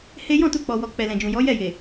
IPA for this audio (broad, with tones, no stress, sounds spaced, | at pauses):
h e˦ j ɔ̃˦˨ t u˧ k͡p ɔ˨ w ɔ˨ k͡p ɛ˨ l ɛ̃˨ d͡ʒ ũ˨ j ɔ˨˦ j ɛ˦˨ j e˨